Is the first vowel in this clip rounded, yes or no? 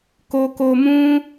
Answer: yes